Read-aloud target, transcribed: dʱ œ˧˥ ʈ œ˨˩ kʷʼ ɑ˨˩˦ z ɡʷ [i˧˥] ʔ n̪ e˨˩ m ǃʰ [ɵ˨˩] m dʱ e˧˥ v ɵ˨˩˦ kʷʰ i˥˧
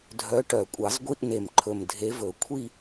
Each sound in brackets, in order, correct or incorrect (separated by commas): incorrect, correct